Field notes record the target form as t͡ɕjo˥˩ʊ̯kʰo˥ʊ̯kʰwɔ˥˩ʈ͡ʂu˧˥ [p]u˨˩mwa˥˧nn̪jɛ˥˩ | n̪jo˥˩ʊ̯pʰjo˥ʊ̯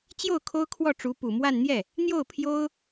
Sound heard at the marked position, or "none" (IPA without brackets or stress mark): p